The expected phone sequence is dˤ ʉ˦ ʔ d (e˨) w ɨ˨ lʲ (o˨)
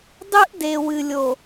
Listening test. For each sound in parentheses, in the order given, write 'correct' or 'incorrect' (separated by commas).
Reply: correct, correct